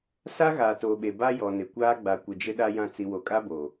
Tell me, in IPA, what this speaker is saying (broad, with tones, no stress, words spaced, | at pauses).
sa˦ɣaː˨toː˨ɓe˨ ba˦jɔ˨nɪ˨ kʷaː˦ɡ͡ba˨kʷɪ˨ d͡ʒɪ˨ɗa˨jã˨ t͡si˨wo˨kʼa˦boː˨